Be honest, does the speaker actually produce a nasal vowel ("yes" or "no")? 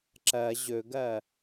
no